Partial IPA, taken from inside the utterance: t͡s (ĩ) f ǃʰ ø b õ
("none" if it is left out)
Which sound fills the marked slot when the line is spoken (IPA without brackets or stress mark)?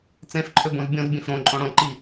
ẽ